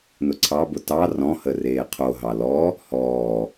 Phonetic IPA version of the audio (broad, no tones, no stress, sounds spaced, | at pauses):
n ʊ ǀʰ ɑ b ʊ t ɑ r ɔ̃ h ə r eː qʰ o ɦ ɑ l ɔ | h ɔː